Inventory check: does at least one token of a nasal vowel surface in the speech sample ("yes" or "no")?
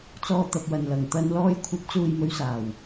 no